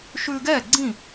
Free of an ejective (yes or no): yes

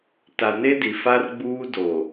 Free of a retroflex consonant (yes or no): yes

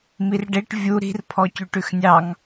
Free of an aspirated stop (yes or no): no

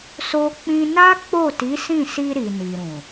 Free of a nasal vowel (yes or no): no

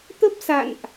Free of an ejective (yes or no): yes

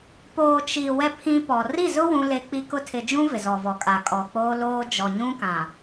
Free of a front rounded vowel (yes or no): yes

